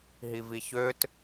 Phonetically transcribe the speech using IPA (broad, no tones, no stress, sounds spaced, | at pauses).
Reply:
ɦ i v i ç ø t